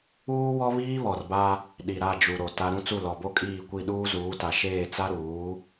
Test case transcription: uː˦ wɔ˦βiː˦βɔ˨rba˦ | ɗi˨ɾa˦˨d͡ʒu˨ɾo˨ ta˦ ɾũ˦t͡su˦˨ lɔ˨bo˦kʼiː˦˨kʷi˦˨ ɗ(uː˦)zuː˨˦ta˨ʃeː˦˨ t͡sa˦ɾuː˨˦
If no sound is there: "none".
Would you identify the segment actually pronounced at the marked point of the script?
uː˦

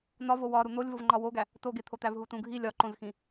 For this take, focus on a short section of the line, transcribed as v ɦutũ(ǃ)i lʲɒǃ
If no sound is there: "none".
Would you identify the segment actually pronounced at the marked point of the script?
ɡʱ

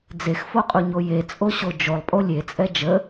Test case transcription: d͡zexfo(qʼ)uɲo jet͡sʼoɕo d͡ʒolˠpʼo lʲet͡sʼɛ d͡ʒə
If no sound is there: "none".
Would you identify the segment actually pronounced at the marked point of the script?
qʼ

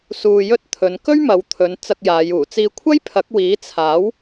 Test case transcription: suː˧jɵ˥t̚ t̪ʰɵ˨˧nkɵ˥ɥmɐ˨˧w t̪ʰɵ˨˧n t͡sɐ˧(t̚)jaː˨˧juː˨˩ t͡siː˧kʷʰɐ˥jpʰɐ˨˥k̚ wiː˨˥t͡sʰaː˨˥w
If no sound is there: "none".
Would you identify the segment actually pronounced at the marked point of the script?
k̚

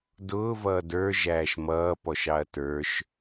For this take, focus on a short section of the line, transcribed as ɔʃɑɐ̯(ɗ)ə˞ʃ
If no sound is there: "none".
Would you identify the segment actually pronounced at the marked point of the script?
t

